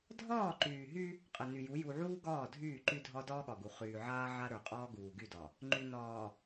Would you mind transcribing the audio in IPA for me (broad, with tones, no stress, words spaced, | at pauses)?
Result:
dʱɒː˦˨ǃyː˨ɦy˦ | qʼə˨ ny˨ju˨˦ ju˨ʕuː˦ ɡɒː˦˨dʱyː˦˨ǃy˦dʱɒ˦ dɒː˦ɠɒ˨ɡu˨ χyː˨ʕaː˦ ʕa˦ɾə˞˨qʼɒː˦ ɡuː˨ɡy˦˨dɒ˨ | ŋ͡ǃy˨nɒː˨